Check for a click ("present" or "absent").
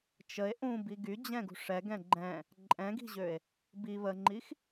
present